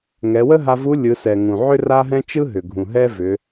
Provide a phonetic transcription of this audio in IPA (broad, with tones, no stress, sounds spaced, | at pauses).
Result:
ŋ ɛ˩˧ w ə˥ ɦ a˧ v u˧˥ lʲ ɯ˩˧ s ɛ˩ ŋ ũ˩ ʕ ʏ˥ r a˥ ɦ ɛ̃˥ t͡ʃ ɯ˥ ɦ ʏ˩ ɡʱ ũ˩ ɦ ɛ˥ v ʏ˩˧